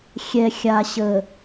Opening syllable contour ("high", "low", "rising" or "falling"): low